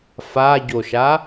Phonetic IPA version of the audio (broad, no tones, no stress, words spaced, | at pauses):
faɟoʃa